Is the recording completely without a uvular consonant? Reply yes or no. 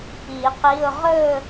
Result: no